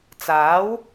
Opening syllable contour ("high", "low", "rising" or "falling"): rising